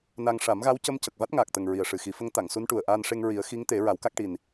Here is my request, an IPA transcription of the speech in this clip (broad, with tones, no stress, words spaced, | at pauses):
na˧ŋ ʂa˨˩˦mɣa˧˥wcə˧˥m cə˨˩k̚va˦˥t̚ŋaː˨˩k̚t̪ə˨˩ŋ ɹi˨˩ə̯ʂɨ˨˩xi˨˩˦fə˧˥ŋ t̪a˨˩˨ŋsu˧˥nʈu˨˩ə̯ ʔaː˧nʂe˧ŋ ɹi˨˩˦ə̯xi˧˥ŋt̪e˨˩˦ ɹa˨˩˦wka˦˥k̚ʈi˨˩n